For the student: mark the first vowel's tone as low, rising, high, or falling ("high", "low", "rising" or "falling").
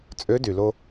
rising